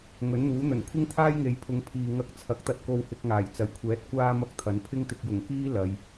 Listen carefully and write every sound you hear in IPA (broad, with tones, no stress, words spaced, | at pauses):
ŋɵ˨˥nn̪uː˨˥n̪ɵ˨˩n kʷʰɪ˥ŋt̪ʰaː˥jŋe˨˧jpʰʊ˨˧ŋ pʰiː˨ŋɐ˧k̚t͡sʰɐ˨˥k̚t̪ɐ˧t̚ ko˧whɪ˧k̚ŋaː˨˩j t͡sɐ˨˩jkʷʰɛː˨˥t̚ kʷaː˥ mɐ˥k̚t̪ʰɐ˨˥n pʰɪ˥ŋt̪ɪ˧k̚ jʊ˨˩ŋkiː˥ lɐ˨˧j